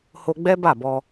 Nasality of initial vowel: oral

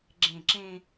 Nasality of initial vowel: nasal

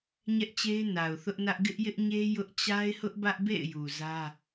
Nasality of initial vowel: oral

